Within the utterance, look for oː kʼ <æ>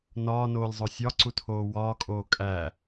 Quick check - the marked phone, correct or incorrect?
correct